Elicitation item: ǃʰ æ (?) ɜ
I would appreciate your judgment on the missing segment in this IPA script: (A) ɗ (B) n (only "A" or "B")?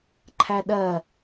A